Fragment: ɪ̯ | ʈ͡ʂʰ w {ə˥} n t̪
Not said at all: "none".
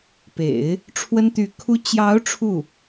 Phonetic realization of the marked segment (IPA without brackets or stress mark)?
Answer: ə˥